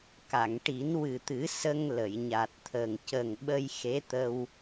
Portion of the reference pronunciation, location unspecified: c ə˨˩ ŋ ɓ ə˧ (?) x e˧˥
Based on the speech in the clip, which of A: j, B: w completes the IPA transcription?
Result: A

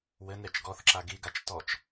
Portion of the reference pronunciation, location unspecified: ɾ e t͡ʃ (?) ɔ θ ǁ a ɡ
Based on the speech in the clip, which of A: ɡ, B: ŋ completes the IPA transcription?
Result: A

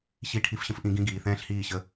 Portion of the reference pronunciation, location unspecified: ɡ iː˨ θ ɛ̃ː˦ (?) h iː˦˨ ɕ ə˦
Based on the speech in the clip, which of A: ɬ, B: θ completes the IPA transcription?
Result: A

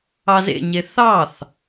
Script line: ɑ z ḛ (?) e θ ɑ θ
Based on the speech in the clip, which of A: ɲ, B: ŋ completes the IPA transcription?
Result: A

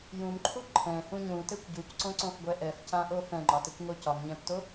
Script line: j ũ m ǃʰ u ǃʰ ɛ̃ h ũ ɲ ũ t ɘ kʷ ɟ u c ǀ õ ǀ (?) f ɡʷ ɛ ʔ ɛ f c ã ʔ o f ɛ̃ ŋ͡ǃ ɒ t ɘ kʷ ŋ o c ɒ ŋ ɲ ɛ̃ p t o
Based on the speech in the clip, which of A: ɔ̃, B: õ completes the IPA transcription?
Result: B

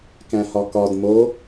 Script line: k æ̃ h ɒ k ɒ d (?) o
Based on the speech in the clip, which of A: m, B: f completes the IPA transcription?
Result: A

